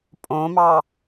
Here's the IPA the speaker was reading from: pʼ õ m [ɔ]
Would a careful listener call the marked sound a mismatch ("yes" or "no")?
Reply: yes